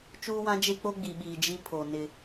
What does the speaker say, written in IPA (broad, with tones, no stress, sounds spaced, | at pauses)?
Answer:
t͡ʃ uː˦ w ã˦ d͡ʒ e˦ k͡p o˦ ɡ͡b i˨ ɓ iː˨ d͡ʒ i˦ pʰ o˨ n ɪ˦